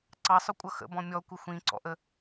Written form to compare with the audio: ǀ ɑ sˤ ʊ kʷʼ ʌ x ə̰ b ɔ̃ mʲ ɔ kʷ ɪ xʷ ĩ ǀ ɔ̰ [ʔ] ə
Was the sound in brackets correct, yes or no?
yes